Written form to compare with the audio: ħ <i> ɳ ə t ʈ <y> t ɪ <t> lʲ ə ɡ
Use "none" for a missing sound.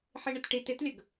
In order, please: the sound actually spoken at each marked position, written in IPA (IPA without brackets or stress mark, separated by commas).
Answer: i, i, t